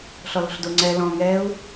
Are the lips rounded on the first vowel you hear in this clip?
yes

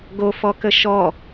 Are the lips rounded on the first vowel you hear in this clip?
yes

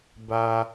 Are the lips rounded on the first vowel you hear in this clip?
no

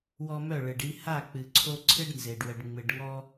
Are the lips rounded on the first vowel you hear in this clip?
yes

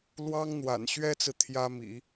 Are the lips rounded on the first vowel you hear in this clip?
no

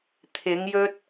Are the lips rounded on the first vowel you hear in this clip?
no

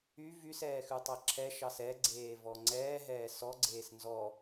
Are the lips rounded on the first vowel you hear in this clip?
yes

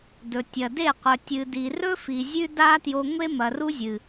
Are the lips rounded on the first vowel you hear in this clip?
yes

